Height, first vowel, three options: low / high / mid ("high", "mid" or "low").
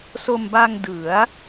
mid